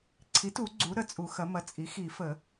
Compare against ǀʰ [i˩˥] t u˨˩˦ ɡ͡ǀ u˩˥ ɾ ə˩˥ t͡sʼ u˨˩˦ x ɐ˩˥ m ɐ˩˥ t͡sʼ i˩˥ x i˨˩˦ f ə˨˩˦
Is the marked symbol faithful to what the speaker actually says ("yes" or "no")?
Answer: yes